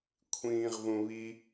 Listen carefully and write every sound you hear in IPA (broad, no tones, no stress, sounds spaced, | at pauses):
kʷʰ ĩː ʁ v ũ β i